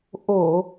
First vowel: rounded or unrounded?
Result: rounded